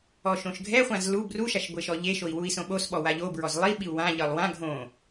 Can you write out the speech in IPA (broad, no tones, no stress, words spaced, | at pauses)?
ɔʃõʃɡʱɛχʷãz lu bruʃaʃ ɡʷeʃɔʎeʃoi̯ wui̯sõɓosɓɔ waʎobɹɔz lˠiɓiu̯ wãʎɤlˠ wã ɡʱõ